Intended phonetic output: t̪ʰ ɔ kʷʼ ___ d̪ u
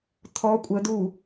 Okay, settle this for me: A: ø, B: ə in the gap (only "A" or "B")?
B